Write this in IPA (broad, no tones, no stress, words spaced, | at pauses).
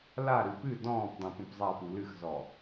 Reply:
laɾɨ pɨ dɔ̃ːpdˤẽ pũpzˤapu lɨxzɔ